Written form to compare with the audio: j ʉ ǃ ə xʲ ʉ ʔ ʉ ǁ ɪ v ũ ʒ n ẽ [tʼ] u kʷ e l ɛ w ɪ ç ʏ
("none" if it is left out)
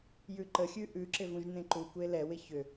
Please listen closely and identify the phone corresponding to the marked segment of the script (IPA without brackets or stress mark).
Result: ǃ